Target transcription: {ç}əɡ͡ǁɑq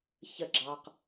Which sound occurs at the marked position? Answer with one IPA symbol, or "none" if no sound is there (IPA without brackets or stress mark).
ç